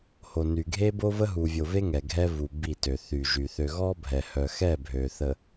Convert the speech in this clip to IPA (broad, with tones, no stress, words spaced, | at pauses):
ho˨ny˨ɡʱe˦bo˦ və˦ɦu˨vʲo˨ve˦ ŋɛ˨ɡʱɛ˦vu˨ bi˦˨tø˨ θy˨ʒy˨ θø˨ ɣɔ˦bʱɛ˨hœ˨xɛ˦˨ bʱø˨θə˨